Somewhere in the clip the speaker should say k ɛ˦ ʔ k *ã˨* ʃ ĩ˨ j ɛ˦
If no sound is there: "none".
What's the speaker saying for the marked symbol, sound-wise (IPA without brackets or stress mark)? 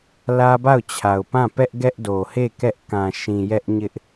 ã˨